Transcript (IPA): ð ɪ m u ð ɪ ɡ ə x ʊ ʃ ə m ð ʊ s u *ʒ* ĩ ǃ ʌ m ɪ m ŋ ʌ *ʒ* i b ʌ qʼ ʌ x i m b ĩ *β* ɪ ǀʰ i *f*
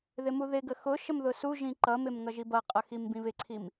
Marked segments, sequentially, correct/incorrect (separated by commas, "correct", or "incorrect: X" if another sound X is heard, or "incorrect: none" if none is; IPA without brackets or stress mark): correct, correct, correct, incorrect: m